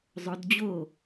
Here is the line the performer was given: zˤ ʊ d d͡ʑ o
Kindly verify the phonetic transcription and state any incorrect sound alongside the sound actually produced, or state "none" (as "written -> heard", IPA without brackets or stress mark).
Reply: ʊ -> ɵ